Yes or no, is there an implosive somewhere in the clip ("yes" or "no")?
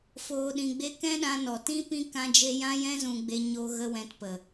yes